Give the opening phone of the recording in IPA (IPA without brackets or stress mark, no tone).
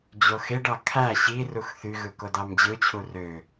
d͡ʑ